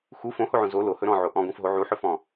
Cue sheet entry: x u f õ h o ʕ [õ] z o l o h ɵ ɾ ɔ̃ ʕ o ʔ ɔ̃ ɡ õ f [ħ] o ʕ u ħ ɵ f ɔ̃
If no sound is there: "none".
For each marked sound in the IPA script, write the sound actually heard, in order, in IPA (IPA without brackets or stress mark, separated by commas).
õ, ɦ